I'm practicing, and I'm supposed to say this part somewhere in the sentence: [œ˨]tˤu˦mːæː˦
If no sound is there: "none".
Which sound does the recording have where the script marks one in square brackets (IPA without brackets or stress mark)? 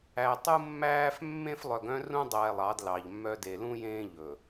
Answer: æ˨